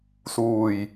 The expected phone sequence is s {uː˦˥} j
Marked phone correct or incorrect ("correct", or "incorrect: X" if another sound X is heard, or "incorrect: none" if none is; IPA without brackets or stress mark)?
incorrect: uː˧